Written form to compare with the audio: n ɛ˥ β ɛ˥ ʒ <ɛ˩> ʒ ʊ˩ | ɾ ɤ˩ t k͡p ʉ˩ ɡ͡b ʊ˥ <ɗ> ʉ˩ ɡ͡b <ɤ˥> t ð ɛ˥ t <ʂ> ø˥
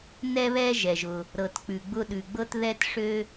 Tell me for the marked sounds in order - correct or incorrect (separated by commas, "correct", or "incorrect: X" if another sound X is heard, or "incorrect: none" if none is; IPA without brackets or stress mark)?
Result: correct, correct, correct, correct